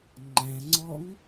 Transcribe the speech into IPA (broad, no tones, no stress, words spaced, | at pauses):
ŋ͡ǃæ̃ŋ͡ǀɔŋ